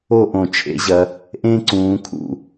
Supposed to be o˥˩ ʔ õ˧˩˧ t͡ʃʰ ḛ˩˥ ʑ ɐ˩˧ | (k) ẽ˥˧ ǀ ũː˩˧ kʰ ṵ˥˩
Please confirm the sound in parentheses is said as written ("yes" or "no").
no